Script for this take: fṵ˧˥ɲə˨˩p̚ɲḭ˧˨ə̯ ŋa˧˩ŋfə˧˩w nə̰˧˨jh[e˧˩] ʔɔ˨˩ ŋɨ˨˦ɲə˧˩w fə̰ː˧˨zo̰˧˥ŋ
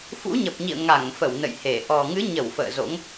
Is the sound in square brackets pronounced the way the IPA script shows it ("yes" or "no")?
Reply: yes